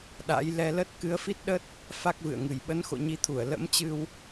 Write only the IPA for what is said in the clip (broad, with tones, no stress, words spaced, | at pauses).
ɗa̰˧˥j lɛ˧lə˦˥t̚ kɨ˨˦ə̯fi˦˥t̚ɗə˦˥t̚ | fa˦˥k̚vɨ̰˧˨ə̯ŋɨ˨˩j ɓə˨˦nxo̰˧˨ɲi˨˦t̪ʰu˧˩ə̯ lə̰˧˥mt͡ɕɨ˧w